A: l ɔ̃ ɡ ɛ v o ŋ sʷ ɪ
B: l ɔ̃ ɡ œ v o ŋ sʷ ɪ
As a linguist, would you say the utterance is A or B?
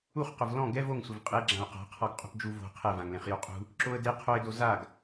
A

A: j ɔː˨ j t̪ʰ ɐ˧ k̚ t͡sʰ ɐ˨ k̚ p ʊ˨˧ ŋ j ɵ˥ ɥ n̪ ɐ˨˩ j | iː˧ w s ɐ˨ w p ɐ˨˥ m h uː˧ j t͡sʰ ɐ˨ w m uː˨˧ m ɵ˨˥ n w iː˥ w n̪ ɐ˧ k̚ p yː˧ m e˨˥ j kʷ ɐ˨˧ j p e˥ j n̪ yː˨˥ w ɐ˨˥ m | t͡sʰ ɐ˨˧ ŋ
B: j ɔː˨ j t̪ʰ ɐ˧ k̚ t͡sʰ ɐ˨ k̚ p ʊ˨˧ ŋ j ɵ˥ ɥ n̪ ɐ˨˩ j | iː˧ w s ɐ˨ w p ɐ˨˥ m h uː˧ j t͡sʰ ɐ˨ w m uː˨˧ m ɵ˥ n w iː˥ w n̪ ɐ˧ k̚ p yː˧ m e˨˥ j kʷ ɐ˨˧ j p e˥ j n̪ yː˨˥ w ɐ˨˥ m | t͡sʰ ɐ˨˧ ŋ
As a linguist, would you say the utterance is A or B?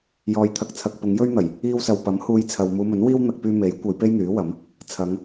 A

